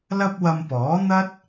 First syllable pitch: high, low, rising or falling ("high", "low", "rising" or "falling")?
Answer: high